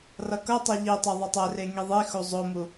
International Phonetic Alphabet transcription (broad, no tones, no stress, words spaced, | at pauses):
rʌkʌtˤe ʎitˤɛ ðˤʌtˤɛre ŋiðˤixu zˤomu